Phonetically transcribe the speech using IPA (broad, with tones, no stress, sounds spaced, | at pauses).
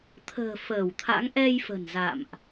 t̪ʰ ə̤ː˨˩ f əː˧˩ w t̪ʰ a̰˧˥ ŋ ʔ ɛ˧ j f ə̤˨˩ n z a̰˧˨ m ʔ